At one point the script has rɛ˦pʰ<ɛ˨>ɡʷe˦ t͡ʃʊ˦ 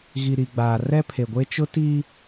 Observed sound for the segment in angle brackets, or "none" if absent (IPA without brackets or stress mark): e˨